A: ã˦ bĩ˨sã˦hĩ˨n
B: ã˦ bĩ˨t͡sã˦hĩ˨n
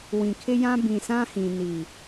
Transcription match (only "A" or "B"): A